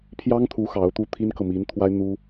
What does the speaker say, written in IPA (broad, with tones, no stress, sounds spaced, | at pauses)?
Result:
pʰ j ɑ˥ ŋ t̪ʰ u˧˥ x ɑ˧˥ ʊ̯ t̪ u˥˩ t̪ʰ i˥ n k ɤ˨ m i˧˥ n t̪ʰ w a˥ ɪ̯ n̪ u˥